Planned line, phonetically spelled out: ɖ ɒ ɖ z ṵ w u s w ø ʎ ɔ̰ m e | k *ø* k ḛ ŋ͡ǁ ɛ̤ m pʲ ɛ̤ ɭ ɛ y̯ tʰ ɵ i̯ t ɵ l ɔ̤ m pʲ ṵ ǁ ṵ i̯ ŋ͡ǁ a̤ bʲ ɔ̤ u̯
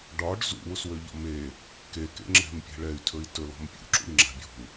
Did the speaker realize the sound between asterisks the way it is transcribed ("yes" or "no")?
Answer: no